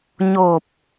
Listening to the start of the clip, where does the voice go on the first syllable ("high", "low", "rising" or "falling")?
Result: low